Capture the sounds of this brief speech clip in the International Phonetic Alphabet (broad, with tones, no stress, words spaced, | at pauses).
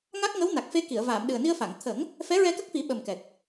ŋa˦˥k̚ŋə˧˥wna˨˩k̚ fe˧ki˨˩˨ə̯vaː˨˩˨m ɗɨ˨˩ə̯ ni˧ə̯fa˨˩˨ŋ t̪ʰə˨˩˦ŋ | fɛ˧˥ɹɛ˧ kə˦˥k̚fi˨˩˦ ɓə˨˩mkɛ˨˩k̚